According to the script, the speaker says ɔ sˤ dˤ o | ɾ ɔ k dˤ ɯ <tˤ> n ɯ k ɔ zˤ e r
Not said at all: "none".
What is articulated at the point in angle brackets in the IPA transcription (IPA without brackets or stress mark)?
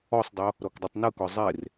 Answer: tˤ